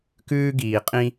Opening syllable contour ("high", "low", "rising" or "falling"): high